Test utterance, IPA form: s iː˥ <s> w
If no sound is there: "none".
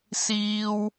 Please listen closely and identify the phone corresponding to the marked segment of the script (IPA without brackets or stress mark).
none